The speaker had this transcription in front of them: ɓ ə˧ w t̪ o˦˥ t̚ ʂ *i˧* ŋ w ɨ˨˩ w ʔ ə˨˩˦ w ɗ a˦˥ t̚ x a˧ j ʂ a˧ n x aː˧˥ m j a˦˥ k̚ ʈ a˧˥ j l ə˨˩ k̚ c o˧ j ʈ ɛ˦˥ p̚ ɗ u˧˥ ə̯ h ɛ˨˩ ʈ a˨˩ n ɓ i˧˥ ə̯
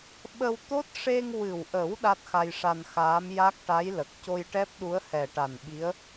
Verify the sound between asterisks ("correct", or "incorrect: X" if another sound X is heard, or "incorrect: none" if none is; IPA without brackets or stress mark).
incorrect: e˧